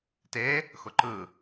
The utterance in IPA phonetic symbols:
te | xʊǃɯ

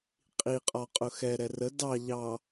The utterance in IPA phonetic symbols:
qʼiqʼɒ qʼʊxɛ ɾɛrə dɑ ʎɑ

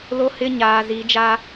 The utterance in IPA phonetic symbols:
lo˦hɪ˦ ɲaː˨zi˨˦d͡ʒa˦

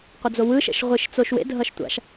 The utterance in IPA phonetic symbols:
qʷʌd͡zowɯʃɛ̰ʃ ʁʷiʃ t͡soʃwḛdʱʌʃ tʷa̰ʃ

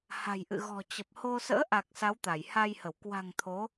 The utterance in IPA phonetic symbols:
ha̤˨˩jʔɨ̰˧˨ ɣɔ̤˨˩t͡ɕə˨˩p̚ho˧ sə̰ː˧˥ʔa˨˩k̚ sa˨˦wt̪a˧˩jha˧jhə˧˩w kwa̤˨˩ŋ t̪ʰo˨˦

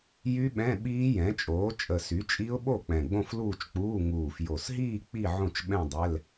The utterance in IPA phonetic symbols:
jy˦˥ ɓɛ̃˧˥˧ɓiː˦˥jɛ̃˩˥t͡ʃʼoː˩˥ t͡ʃʼə˨˩sy˩˥t͡ʃʼi˦˥ʊ̯ɓo˥˩ k͡pɛ̃˨˩ɡ͡bõ˥˧fluː˥˧t͡ʃk͡puː˧˥˧ ŋuː˨˩fjo˨˩sɦiː˥˧ k͡pi˥˧ ʕõ˥˩t͡ʃɓɛ̃˥˧dˤɛ˧˥˧l

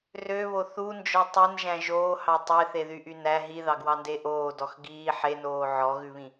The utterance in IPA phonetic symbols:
røβo θund͡ʒɔ tˤenʒæ̃ ʒoːhɑ tˤeθeðyʔy næ ɦiðɑɡwɑnde ʔoːdɔx ɡiː ħenoː ʕɔɣʉβĩ

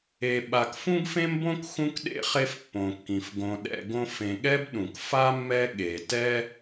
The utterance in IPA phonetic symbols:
e˨ ɓa˨kfũ˦ɡfẽ˦mbõ˦k xũ˥kɗḛ˥χe˦f pːõ˩kːĩ˩f ɡõ˨ɗɛ̰˨ɡõ˦ fẽ˨ɠɛ˥bɗũ˩k fa˥mːɛ˦ ɠe˩tɛ˦

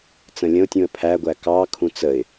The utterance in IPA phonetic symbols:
t͡sə̃lʲə̃ʊ̯tʲũə̯ pʰæɡʷæ kɑkʰũ t͡səɪ̯

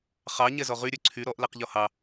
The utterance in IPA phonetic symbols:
χɑ ɲɛzɔʁyɾʲø ǀʰy ɾɔʔlɛq ʎɔhɑ

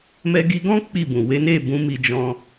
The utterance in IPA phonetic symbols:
mɛ˧ɡi˧ɡɔ̃˦ k͡pi˦˨bũ˨ we˨˦ne˦˨ bũ˨˦ mi˧d͡ʒɔ̃˧

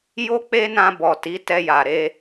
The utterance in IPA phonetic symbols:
jo˦ k͡pe˦nã˧bɔ˨ ti˨˦ tɛ˧ja˨ ɾe˧

